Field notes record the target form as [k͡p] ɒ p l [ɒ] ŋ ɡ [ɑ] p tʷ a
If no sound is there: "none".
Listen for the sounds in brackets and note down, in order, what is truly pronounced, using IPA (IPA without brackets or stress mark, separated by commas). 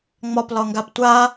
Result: ŋ͡m, ɒ, a